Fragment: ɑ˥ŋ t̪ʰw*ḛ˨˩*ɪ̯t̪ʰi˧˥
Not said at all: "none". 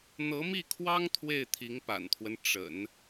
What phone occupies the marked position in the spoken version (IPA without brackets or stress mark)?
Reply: e˥˩